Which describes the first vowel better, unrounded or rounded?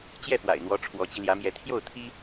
unrounded